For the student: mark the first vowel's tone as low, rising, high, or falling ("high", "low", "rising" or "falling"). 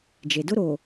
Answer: low